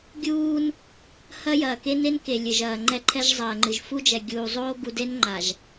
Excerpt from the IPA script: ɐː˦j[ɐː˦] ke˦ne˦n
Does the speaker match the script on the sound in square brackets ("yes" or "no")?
no